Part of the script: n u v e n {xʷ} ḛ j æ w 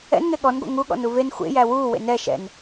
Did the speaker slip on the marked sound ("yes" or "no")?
no